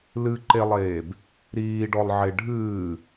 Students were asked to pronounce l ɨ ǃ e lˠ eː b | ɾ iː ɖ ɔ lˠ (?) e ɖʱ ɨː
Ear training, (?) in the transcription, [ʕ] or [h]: ʕ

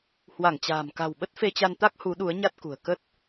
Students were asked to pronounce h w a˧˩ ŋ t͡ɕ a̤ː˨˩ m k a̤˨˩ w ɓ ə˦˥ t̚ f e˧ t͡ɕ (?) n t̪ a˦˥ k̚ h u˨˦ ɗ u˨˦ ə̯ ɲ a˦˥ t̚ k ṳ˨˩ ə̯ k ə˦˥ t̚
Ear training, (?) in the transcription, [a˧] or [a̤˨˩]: a˧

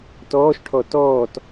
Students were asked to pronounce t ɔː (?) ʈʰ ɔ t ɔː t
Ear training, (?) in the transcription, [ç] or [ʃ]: ʃ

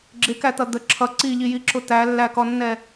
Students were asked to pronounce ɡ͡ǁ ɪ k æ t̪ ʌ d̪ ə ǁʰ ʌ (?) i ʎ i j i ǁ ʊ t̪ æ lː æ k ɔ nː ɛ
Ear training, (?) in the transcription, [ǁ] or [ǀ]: ǀ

